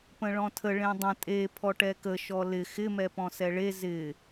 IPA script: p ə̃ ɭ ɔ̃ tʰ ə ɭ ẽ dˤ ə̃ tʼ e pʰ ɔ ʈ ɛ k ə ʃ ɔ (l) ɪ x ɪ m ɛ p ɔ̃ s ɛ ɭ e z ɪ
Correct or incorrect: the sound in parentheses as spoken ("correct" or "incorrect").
correct